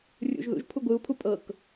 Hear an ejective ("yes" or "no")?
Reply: yes